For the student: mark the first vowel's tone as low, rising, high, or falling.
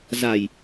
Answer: low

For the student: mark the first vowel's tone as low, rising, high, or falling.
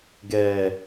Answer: low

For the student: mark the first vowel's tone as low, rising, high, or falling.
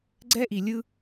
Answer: high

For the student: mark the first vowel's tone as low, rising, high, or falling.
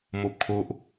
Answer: high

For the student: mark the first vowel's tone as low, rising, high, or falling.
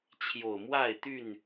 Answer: low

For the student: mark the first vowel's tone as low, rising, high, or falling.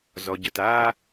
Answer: low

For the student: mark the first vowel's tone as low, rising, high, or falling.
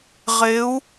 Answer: rising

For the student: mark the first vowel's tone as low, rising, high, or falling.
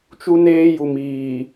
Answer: high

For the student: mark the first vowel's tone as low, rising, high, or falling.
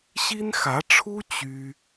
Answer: high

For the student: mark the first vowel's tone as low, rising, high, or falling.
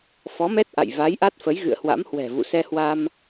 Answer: rising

